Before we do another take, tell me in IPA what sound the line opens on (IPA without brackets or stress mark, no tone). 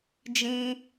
d͡ʒ